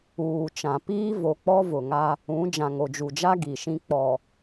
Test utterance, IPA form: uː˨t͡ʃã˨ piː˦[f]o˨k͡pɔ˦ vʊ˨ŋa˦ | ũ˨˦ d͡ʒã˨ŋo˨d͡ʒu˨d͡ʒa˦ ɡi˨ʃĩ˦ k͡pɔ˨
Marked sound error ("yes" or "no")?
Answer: yes